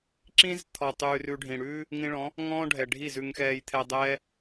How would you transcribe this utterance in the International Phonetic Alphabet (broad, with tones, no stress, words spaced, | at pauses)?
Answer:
ǁĩ˧z t̪ʰɔ˨ tˤʉː˧rʉ˧ɖʱĩ˨ɽʉː˦ | ŋĩ˧ɭɔ̃˨˦ | ŋɔ̃ː˦ɖʱɛ˨ ɖʱi˦˨zʉ˧ŋxɛː˧j t̪ʰɛ˧dˤɛː˦